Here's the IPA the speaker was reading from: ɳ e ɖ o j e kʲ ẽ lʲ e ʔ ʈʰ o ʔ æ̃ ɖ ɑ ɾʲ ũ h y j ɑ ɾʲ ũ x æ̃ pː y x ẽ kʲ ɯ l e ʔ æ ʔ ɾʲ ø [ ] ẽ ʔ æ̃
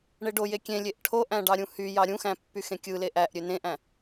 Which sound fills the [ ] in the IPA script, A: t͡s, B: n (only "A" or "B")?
B